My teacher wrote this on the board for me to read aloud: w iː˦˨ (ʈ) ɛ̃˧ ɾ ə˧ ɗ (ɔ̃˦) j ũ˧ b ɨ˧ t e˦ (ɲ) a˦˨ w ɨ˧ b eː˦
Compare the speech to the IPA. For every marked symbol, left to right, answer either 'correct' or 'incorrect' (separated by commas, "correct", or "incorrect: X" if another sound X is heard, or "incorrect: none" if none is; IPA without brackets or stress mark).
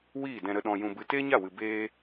incorrect: d, incorrect: ɔ̃˧, correct